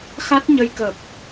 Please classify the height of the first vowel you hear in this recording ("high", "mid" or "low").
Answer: low